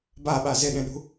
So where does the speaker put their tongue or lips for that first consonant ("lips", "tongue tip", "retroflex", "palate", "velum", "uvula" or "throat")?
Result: lips